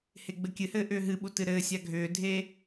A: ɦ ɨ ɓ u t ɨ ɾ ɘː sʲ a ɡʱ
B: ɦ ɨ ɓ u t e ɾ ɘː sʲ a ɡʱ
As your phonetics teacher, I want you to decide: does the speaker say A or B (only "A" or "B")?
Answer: A